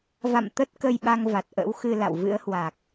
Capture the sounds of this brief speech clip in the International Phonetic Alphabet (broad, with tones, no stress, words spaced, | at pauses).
va̰˧˨m t̪ə˦˥t̚kə˧jɓa˧ŋ va˨˩t̚ʔə̰˧˥w xɨ˧ la̰˧˨wvɨ̰˧˥ə̯hwa˨˩k̚